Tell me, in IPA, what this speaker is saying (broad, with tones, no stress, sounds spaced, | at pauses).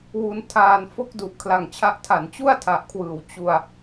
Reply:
w u˧ n tʰ aː˧ n f o˥˩ k̚ d u˨˩ ʔ kʰ l a˨˩ ŋ t͡ɕʰ a˦˥ ʔ tʰ a˩˦ n t͡ɕ u˥˩ a̯ tʰ a˨˩ ʔ kʰ w ɯː˩˦ w t͡ɕ u˧ a̯